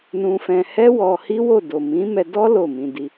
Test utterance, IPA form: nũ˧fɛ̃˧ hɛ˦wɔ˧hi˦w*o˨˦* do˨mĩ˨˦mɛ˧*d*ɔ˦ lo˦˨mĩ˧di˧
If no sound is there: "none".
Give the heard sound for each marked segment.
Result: o˦˨, d

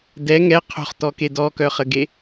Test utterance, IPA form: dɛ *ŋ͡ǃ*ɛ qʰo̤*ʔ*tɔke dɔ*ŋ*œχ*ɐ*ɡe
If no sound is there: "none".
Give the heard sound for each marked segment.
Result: ŋ, χ, k, ə

